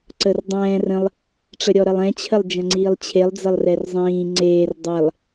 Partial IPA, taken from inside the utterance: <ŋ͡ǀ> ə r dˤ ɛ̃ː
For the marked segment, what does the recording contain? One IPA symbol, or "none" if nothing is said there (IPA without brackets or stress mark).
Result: ǀ